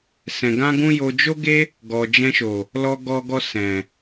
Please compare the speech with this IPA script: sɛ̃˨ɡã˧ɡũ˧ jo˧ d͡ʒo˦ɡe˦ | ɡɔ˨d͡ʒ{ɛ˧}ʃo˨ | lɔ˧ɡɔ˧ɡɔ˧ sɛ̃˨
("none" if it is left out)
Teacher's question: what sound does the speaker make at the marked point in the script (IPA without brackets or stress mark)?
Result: ɛ̃˧